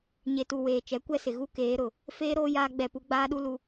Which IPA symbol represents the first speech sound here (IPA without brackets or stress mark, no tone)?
ɲ